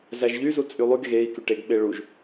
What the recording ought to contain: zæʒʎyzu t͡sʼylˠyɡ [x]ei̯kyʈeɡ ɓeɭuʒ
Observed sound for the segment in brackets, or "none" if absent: ɣ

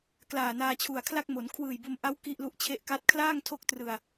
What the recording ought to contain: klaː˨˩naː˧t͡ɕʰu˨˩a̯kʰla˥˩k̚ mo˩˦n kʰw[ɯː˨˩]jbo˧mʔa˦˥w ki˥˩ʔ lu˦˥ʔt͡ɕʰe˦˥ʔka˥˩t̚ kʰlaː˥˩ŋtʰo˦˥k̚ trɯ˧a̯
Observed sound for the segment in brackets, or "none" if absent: ɯː˨˩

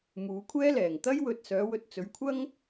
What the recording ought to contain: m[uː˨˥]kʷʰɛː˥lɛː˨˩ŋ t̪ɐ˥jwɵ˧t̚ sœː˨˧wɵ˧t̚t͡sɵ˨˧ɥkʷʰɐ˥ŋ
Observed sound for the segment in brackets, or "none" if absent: uː˨˧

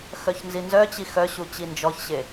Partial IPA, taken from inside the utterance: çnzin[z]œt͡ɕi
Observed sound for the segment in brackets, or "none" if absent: z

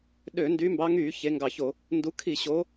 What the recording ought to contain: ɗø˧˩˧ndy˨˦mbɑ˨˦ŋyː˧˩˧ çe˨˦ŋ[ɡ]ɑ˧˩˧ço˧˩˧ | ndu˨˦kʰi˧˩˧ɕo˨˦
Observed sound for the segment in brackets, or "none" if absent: ɡ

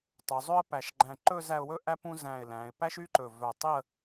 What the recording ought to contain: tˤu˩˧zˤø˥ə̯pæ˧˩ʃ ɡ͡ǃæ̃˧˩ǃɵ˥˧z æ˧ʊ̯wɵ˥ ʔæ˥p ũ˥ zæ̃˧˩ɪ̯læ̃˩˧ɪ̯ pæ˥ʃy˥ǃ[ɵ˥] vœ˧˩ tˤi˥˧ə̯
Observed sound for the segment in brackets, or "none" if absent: ɵ˧˩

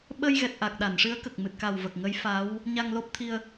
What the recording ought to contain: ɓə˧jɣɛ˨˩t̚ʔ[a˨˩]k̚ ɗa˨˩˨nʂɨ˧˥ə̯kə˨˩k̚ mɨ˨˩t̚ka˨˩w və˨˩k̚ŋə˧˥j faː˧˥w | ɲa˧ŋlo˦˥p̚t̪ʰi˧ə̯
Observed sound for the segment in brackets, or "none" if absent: a˨˩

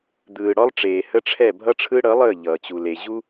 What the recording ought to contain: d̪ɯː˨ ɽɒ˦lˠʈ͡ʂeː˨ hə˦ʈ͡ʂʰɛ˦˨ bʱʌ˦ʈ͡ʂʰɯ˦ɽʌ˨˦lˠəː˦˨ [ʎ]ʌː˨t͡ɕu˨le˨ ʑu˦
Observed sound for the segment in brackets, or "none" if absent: ʎ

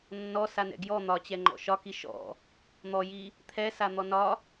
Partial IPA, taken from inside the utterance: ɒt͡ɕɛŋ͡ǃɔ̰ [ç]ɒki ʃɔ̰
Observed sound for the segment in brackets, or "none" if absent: ʃ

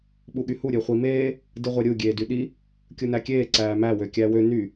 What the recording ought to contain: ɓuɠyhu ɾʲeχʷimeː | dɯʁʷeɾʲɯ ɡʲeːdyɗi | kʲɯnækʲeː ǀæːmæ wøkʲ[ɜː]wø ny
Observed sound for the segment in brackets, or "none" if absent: æː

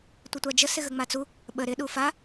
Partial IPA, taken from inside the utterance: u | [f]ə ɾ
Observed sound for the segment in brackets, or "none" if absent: ɓ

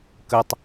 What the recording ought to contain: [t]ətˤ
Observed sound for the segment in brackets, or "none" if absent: k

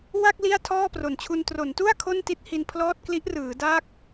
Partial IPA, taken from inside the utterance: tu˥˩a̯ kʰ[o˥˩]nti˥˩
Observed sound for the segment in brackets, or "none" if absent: o˥˩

